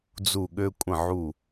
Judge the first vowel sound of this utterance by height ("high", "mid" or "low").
high